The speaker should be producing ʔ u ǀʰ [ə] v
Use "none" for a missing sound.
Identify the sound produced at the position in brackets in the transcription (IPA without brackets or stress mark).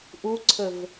ə